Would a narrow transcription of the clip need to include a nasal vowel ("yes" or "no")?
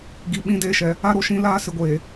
yes